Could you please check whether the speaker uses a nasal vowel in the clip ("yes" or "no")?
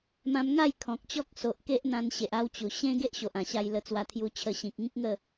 yes